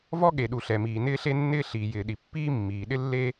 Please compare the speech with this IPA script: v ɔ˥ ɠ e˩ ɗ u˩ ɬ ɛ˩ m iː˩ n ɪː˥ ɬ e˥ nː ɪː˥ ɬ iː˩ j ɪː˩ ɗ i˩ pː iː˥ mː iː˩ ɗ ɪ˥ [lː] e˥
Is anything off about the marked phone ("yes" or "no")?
no